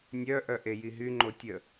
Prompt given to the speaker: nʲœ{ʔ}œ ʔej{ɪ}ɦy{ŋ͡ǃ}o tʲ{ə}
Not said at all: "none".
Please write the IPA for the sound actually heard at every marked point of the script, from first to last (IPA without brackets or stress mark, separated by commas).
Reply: ʔ, i, ŋ͡ǃ, ə